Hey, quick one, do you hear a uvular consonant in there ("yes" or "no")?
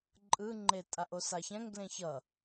no